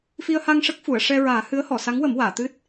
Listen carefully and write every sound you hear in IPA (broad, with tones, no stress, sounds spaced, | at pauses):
f i˧ ə̯ h a˧ ŋ ʂ ə˦˥ k̚ f u˨˩˨ ə̯ ʂ ɛ˧ ɹ aː˨˩˦ h ɨ˧˥ ə̯ h ɔ˨˩˨ s a˧˥ ŋ w ə˨˩˦ m w aː˨˩˨ t̪ ɨ˦˥ t̚